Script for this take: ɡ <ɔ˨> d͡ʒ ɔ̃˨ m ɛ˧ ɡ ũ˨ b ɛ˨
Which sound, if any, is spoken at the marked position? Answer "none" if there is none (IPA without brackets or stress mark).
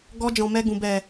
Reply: ɔ˧